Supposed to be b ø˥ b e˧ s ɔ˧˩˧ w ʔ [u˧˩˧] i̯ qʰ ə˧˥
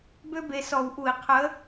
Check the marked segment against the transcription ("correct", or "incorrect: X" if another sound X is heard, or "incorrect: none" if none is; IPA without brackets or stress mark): correct